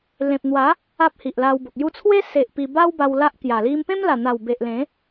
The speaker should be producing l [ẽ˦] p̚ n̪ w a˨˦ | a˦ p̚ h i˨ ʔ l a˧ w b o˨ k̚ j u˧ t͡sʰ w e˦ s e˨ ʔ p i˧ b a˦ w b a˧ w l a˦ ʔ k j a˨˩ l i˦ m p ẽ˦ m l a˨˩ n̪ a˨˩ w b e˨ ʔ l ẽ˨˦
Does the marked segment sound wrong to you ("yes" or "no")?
yes